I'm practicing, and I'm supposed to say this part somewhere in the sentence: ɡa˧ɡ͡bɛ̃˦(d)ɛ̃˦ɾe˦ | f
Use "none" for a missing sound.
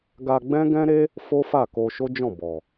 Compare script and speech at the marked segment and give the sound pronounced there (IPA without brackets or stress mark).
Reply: ɡ